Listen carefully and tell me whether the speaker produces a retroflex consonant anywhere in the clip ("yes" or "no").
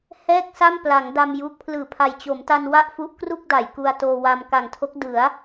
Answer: no